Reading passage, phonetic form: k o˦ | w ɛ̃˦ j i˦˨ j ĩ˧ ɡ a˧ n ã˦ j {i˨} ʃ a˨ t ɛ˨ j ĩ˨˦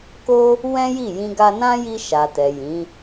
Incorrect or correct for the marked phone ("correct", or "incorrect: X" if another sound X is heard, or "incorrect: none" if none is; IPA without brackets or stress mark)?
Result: incorrect: i˧